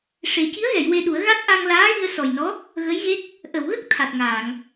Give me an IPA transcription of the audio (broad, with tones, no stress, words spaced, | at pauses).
ʂe˨˩˦ ci˧˥ə̯ɣɛ˨˩˨j we˧ɗu˨˩˦ə̯ ɣa˦˥t̚ʔa˧ŋ laː˧˥ɣi˧ə̯sɔ˨˩jnɔ˧˥ | ɣə˧˥jɣe˦˥k̚ | ʔə˨˩˨wɣə˦˥k̚ t̪ʰa˨˩t̚ŋaː˨˩˨ŋ